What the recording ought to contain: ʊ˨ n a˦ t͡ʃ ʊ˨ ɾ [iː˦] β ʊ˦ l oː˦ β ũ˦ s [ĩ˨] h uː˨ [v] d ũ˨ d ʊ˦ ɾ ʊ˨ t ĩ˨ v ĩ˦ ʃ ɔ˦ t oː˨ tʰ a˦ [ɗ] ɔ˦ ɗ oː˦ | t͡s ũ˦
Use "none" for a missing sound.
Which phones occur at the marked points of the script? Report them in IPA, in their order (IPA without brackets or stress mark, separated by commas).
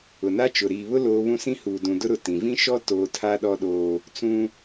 iː˨, ĩ˦, none, ɗ